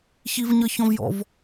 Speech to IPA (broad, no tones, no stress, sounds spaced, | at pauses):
ç i v ɲ ʌ ç ɔ̃ v j ɔ̰ v